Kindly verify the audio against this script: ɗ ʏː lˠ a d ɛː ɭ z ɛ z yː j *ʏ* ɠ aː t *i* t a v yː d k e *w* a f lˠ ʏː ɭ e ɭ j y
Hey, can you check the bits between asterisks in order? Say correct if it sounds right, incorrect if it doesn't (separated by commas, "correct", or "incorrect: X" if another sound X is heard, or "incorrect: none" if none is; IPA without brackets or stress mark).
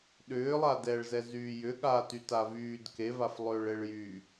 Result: correct, incorrect: y, incorrect: v